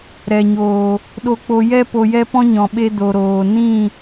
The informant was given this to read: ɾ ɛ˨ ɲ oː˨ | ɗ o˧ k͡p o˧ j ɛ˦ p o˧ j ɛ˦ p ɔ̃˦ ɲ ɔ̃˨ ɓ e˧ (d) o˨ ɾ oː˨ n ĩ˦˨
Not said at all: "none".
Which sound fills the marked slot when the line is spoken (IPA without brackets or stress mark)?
d